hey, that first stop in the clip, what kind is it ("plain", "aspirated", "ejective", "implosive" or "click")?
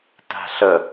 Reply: plain